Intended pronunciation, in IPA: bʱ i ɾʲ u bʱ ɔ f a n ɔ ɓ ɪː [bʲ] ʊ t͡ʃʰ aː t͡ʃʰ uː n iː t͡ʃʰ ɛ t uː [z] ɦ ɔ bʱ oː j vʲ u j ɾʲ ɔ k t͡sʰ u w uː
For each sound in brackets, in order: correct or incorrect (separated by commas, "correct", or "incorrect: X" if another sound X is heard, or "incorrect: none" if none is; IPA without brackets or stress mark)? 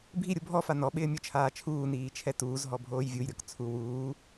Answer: incorrect: mʲ, correct